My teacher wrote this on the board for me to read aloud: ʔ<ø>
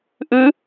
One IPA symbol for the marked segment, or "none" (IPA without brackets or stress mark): ʉ